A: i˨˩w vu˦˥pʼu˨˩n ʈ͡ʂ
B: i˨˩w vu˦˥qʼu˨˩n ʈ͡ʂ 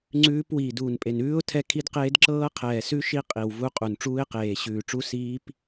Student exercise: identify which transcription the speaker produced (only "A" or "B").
B